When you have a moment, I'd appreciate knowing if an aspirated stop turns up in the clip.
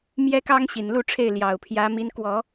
yes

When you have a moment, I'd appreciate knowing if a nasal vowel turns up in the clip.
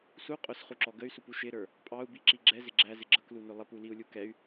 no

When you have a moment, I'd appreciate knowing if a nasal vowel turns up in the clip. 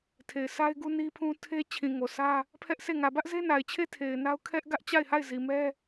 yes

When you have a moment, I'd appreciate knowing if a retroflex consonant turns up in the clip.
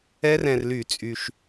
no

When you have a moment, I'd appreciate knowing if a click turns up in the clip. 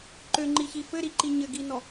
yes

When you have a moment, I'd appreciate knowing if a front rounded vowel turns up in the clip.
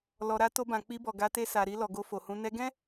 no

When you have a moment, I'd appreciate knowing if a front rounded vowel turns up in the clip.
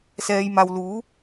no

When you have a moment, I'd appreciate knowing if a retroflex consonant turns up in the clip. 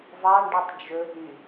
yes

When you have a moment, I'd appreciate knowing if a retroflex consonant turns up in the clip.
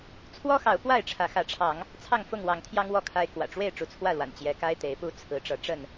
yes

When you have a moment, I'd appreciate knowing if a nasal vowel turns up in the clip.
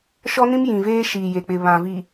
yes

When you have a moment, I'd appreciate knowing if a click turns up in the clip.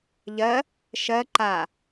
yes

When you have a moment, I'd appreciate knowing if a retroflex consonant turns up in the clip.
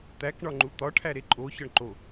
yes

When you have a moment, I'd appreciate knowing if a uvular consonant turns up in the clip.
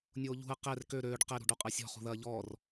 yes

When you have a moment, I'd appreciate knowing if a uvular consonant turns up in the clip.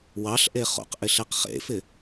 yes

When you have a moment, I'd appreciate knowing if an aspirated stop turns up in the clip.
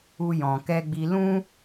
no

